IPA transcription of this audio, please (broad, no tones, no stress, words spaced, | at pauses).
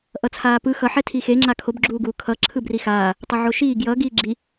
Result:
ʔʌt͡sʰaːpɯ xʌ ħɛtʰixe ŋ͡ǁakʰob ɡ͡ǁuːɡuːkʰʌ ǁʰɯbrixaː | tˤoʕoʃiː ɡjʌ ɡiːɡ͡ǁi